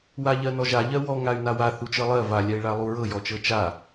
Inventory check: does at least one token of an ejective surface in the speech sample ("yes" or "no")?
no